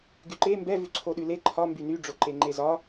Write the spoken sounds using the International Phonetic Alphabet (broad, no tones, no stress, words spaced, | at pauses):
ɡyǃe mbɛ vʉǀʰoɗʉle ǃʰɒ mbyny ɖ͡ʐoǃeŋ͡ǃezɒ